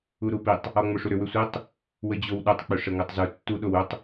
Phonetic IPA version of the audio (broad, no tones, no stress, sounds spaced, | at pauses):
u ɾ u p i tˤ | ɔ ŋ͡m o ʂ u ɾ ʏ w ʏ sʷ i tˤ | w ə d͡ʑ o w ɗ ʏ tˤ k͡p ʏ ʂ ə ŋ o tˤ z u tː u ɗ o w ʏ tˤ